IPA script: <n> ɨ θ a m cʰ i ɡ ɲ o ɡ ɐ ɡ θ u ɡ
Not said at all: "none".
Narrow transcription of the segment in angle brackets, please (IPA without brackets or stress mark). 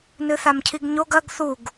n